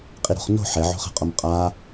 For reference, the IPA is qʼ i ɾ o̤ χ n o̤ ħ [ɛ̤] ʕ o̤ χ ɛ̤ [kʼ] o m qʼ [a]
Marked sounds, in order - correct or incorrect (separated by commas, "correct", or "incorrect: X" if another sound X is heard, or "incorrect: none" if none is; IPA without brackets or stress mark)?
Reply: incorrect: ɛ, incorrect: qʼ, correct